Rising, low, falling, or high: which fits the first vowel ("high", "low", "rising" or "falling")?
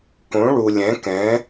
rising